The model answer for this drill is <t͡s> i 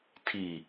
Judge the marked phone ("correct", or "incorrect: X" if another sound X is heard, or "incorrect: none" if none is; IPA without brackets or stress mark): incorrect: tʰ